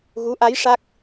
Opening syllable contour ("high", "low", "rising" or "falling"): rising